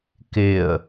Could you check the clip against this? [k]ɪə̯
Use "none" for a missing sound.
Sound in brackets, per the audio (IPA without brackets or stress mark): k